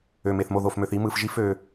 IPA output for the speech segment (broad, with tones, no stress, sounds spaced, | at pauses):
ø˧ m e˧ θ m o˦˨ ð o˦˨ f m ø˧ θ i˦ m ɯ˧ f ʒ i˦ f ø˦